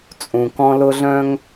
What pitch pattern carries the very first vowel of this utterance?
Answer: low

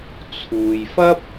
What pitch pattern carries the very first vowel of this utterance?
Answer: low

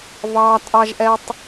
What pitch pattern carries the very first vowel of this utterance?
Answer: low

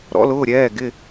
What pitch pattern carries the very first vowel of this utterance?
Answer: rising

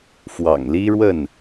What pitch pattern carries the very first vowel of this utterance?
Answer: low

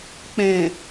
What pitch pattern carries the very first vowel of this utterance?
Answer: low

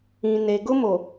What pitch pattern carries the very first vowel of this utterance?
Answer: low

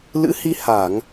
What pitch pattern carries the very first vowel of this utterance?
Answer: rising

